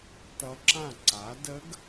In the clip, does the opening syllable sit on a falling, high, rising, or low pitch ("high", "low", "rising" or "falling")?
rising